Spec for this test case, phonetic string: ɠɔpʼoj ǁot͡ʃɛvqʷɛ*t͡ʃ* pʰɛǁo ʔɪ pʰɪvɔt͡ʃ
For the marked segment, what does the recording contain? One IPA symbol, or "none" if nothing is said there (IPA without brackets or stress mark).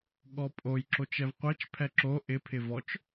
t͡ʃ